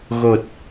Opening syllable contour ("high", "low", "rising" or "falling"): low